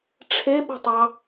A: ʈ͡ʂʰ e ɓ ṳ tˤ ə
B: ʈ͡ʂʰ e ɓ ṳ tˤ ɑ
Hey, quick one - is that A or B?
B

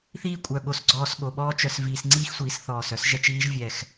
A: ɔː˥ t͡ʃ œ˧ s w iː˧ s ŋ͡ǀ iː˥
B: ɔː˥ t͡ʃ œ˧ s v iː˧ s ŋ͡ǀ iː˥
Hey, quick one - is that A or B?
B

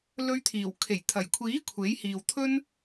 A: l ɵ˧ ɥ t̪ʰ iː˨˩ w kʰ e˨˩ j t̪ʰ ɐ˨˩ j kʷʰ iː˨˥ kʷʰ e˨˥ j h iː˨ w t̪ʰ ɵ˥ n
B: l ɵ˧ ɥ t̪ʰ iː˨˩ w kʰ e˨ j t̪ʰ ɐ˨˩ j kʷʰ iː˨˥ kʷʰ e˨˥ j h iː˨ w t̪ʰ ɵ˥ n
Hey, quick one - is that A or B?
A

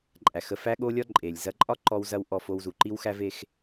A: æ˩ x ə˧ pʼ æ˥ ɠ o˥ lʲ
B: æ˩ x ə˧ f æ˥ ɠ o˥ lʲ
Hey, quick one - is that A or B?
B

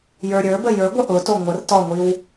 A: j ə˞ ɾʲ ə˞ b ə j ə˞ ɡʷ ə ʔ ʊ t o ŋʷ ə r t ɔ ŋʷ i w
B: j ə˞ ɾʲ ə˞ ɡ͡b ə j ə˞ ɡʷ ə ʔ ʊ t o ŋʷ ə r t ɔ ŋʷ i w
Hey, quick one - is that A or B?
A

